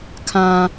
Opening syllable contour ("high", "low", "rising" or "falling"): high